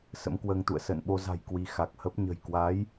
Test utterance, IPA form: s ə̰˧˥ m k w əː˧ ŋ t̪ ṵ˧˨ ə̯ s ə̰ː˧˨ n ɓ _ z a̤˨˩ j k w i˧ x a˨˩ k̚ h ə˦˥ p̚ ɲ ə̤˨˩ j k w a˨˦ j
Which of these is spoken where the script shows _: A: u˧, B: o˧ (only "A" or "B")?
B